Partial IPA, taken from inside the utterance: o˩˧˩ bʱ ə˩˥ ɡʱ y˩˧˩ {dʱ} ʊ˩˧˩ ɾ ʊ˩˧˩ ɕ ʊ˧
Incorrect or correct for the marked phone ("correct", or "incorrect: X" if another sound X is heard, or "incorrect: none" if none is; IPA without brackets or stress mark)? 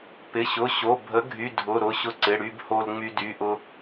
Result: correct